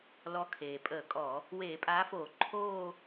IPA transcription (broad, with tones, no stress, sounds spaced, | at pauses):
l ɔ˨˦ kʰ eː˩ pʼ əː˧˩˧ kʼ ɔ˧˩˧ | w eː˧˩˧ pʼ aː˨˦ f oː˧˩˧ ǃʰ oː˥˧